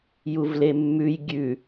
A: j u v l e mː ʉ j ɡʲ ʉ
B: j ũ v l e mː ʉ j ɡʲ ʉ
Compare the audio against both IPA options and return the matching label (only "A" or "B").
A